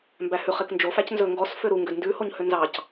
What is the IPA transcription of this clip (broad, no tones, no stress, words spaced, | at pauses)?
mbæhʉχek nd͡ʒo fæcnzɵ ŋɡɔs føɾu ŋɡødndʉhoɲ hønzɑc